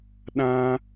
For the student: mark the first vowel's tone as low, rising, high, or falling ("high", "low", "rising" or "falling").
high